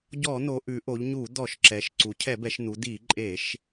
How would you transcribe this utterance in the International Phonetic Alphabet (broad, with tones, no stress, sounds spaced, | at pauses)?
ɟ ɔ˧˩˧ n̪ o˩˧ ʔ ʉ˩˧ ʔ o˩˧ ʎ ɲ u˧˩˧ d̪ ɔ˧˩˧ ʃ ǁ ɛ˩˧ ʃ ǀ u˩˧ cʰ ɛ˧˩˧ b ɛ˩˧ ʃ n̪ u˩˧ d̪ i˧˩˧ ǃʼ e˧˩˧ ʃ